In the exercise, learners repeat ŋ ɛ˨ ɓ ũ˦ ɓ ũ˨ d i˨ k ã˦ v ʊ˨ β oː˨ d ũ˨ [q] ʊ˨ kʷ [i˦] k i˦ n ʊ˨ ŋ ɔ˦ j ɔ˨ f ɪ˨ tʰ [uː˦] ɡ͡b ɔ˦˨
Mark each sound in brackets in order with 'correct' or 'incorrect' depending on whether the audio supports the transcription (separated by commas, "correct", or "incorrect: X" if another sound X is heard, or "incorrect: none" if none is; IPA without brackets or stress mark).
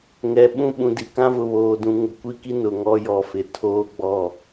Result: incorrect: ŋ, correct, incorrect: oː˦